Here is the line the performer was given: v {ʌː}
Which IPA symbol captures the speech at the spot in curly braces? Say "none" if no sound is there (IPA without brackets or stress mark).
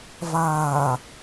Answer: aː